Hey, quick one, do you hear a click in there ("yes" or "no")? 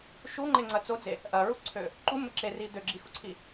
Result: yes